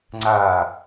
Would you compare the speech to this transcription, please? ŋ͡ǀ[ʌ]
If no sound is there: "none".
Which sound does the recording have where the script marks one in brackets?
a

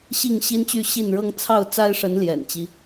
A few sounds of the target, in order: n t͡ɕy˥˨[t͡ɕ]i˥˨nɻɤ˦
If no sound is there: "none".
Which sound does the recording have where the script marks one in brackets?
ɕ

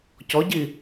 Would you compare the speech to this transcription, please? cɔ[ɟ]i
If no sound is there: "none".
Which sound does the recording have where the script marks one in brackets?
ɟ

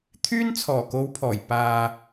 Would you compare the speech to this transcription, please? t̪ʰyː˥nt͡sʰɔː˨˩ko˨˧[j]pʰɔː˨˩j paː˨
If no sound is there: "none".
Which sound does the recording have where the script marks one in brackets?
w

